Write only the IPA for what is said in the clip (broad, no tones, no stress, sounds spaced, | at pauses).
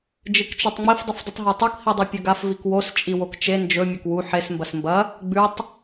d͡ʒ ɨ k t͡ʃ o tˤ ŋ͡m i f dˤ ɨ f dˤ ɨ tˤ ɦ o tˤ u k h i dˤ ʉ pʲ ɵ ɡ a f v i k w o s t͡ʃʼ i w o k t͡ʃ e n d͡ʒ ɵ mʲ ɐ k w u ħ e s m b ɐ s m b ɐ | ɡ͡b ʉ tˤ